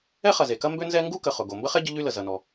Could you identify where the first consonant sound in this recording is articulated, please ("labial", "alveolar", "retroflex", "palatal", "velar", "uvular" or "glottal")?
uvular